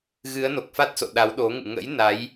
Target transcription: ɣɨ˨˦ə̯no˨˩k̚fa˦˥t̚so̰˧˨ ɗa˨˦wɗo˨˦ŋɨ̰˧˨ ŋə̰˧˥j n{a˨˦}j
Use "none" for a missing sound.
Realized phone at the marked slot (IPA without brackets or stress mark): a˨˦